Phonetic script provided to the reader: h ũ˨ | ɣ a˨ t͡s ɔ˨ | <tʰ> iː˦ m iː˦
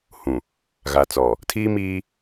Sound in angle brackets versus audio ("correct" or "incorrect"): correct